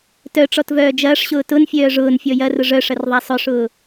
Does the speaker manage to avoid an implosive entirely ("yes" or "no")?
yes